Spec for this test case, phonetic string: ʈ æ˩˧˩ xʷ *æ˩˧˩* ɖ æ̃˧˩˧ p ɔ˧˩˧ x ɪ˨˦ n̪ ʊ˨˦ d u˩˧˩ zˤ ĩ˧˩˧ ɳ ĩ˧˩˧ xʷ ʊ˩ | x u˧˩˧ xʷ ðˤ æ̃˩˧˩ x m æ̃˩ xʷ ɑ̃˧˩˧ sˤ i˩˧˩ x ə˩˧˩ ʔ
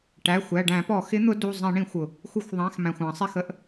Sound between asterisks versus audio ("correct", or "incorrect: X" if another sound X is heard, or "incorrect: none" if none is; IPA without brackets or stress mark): correct